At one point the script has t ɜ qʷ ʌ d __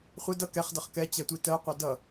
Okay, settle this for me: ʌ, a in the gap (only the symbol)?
ʌ